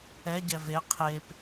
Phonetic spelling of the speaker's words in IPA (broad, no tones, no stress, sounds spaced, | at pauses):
ɛ ɟ ɛ v e qʰ e p